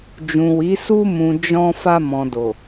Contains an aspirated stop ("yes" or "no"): no